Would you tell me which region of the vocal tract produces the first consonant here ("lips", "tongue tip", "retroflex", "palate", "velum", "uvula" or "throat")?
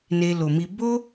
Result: tongue tip